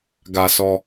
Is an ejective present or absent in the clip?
absent